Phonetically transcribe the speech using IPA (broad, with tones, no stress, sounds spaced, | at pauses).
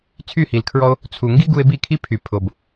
t͡sʰ y˦˨ h i˨ l kʰ ɹ ɔ˧ o̯ | t͡sʰ u˨ ŋ ɡ i˦ ɡ u˧ e̯ b i˦˨ kʰ i˦ pʰ y˨ pʰ o˨ b